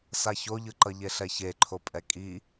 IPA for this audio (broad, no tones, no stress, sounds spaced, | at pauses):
s a ç o ʎ ɯ ǃ ʌ ʎ e ɬ ɛ ç e ǃʰ o pʼ ɛ kʼ i